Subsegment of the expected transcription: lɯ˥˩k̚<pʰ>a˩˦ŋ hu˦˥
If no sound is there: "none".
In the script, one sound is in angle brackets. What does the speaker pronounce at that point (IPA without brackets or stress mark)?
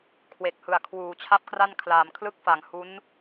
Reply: f